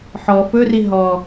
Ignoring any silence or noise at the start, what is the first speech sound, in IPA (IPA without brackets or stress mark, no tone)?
ħ